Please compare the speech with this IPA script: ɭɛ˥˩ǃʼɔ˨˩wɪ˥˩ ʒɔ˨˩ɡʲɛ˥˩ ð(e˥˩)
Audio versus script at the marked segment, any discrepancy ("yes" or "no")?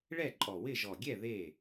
no